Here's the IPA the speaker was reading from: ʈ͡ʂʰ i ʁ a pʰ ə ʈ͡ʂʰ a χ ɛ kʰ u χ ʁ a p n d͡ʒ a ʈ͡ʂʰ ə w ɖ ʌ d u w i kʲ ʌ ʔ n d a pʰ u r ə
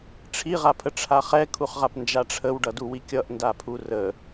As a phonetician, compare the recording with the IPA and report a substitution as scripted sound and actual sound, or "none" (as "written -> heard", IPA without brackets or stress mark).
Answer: none